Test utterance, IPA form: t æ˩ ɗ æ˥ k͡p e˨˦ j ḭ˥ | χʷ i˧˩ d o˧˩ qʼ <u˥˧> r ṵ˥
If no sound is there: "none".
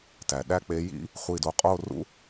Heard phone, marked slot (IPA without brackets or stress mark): o˥˧